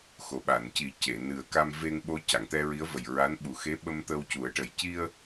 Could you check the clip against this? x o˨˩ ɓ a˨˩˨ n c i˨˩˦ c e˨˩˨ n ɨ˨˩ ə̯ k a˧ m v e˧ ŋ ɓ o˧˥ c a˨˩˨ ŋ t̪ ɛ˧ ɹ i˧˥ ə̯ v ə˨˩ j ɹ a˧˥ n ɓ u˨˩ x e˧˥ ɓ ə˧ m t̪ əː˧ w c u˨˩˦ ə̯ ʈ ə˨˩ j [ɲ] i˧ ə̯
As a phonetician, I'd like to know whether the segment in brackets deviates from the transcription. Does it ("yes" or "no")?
yes